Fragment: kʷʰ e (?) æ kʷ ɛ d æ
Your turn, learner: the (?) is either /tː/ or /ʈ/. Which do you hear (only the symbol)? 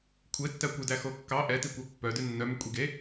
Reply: tː